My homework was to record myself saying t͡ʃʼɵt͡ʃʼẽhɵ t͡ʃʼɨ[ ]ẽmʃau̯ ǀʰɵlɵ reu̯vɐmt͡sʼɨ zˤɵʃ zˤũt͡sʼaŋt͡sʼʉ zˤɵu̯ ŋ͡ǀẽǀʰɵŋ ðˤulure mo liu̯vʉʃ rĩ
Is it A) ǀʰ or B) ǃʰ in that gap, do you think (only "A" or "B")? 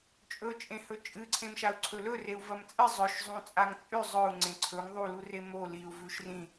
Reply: A